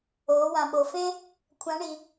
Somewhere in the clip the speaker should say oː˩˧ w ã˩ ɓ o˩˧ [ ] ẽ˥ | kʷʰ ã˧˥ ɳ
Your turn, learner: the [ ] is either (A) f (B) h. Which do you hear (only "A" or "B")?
A